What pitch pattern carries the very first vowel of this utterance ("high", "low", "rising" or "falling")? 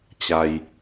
low